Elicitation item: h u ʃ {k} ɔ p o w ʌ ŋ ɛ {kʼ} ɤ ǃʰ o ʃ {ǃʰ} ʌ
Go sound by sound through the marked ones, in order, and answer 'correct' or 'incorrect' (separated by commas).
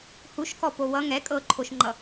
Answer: correct, correct, incorrect